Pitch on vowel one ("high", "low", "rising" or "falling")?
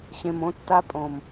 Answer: low